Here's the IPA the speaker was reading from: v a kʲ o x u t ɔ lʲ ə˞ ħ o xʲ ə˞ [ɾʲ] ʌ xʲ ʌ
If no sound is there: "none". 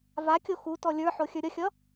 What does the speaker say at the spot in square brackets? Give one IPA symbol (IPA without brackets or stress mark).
ɾʲ